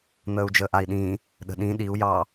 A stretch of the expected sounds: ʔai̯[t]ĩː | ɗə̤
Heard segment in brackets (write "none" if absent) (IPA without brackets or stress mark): ɗ